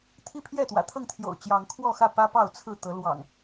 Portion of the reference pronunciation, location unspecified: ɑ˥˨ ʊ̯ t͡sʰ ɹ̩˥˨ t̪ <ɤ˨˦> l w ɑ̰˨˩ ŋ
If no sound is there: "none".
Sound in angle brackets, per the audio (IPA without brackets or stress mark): ɤ˨˦